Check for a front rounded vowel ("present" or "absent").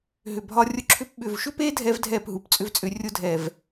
present